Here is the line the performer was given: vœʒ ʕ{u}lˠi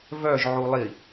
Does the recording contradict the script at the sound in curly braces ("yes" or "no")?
no